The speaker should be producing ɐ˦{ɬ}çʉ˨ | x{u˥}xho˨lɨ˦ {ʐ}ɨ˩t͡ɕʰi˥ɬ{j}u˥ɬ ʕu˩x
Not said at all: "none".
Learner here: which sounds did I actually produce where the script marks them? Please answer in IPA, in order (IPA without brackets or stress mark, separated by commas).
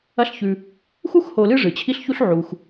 ɬ, u˥, ʐ, ç